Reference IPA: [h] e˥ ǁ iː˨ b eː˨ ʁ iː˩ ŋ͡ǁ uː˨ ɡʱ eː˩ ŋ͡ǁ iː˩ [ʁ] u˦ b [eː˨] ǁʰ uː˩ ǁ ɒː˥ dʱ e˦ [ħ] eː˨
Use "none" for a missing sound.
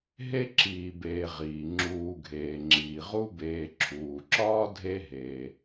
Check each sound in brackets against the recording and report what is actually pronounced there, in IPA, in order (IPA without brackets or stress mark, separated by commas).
ɦ, ʁ, eː˨, ɦ